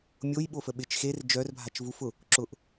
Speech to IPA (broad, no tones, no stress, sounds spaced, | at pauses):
mʲ o j ɓ o f ə ɓ ɪ t͡ʃ x e r d͡ʒ œ r bʱ a t͡ʃ v u f ʊ | ǁ ʊ ʔ